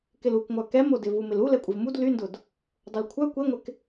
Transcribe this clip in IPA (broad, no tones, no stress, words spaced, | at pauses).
kɪlukŋʷœ kɛmodɪ vumɪlu lɛkʷʼɪvmud lyndʊd | dˤʊlkʷʰœ kʷeŋʷɪk